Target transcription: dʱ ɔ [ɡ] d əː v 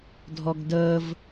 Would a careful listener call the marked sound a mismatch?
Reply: no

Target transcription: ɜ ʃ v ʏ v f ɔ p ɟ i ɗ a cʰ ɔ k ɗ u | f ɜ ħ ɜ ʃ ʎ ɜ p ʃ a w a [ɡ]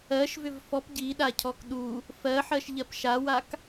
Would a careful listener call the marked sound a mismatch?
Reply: yes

